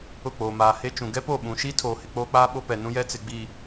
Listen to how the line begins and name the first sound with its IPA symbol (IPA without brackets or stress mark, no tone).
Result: ʊ